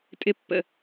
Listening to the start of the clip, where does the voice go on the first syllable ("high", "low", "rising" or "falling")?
falling